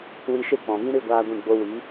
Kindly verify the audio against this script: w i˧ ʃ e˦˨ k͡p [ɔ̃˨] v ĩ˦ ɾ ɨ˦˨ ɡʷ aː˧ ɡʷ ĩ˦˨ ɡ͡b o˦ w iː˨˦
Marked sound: correct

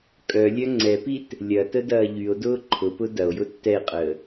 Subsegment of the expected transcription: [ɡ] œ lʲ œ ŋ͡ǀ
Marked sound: incorrect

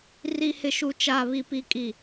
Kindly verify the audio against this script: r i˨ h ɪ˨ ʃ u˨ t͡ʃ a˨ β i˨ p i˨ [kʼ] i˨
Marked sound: correct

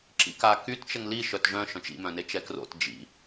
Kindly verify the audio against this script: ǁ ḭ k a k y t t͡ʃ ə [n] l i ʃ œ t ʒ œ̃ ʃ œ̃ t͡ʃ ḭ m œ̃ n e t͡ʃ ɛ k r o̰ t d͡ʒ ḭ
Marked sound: incorrect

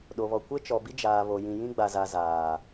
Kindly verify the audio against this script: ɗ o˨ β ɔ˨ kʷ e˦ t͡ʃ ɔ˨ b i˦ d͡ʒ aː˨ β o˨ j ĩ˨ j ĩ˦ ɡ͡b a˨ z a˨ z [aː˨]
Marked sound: correct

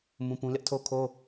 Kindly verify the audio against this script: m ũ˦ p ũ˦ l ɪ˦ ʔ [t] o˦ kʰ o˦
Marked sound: incorrect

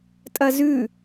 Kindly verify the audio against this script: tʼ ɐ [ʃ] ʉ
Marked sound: incorrect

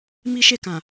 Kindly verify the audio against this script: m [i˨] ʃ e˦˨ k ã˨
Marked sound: incorrect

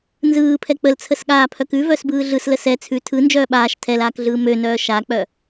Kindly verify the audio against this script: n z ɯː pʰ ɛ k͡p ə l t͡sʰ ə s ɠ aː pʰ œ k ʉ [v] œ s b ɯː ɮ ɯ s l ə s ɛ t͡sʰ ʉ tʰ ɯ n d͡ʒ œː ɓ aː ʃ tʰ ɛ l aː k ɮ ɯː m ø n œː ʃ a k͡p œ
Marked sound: correct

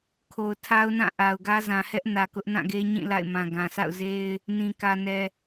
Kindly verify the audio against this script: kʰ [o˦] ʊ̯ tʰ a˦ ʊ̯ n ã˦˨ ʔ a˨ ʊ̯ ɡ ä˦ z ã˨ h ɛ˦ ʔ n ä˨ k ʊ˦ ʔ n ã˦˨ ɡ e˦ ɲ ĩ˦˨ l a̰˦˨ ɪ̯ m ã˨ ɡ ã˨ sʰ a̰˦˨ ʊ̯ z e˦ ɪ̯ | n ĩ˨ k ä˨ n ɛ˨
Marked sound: incorrect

